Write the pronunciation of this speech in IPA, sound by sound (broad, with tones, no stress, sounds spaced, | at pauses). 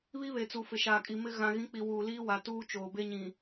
β i˦ β e˨ t͡s u˨ f ɪ˨ ʃ aː˨ kʼ i˨ m ɪ˦ ɣ ã˨ ɣ ĩ˨˦ k͡p i˨ w uː˨ l iː˦ w a˨ t uː˦ t͡ʃ oː˨ b e˦ ɲ ĩ˨